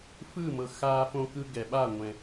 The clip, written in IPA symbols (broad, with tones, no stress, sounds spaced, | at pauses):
f ɯː˦˨ m ɤ˨ x aː˨ f õ˨ k ɯ˨ ɡ ɛ˨ ɓ a˦˨ ŋʷ ɛ̃˨